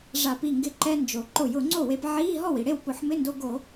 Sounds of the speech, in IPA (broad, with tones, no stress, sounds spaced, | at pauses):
ʐ a˧˩˧ p i˥˩ ŋ ɡ ɪ˧ ǃ ɛ˧ n d͡ʒ o˩ ǃ ʊ˧˩˧ j ʊ˧˩˧ ŋ͡ǀ o˥˩ w e˧ p ʕ iː˧˥˧ ɦ ɔ˥˩ w i˩ ɽ e˥˩ w p ʊ˧˩˧ ħ m ɪ˧˥˧ n d o˧ ɡ o˧˩˧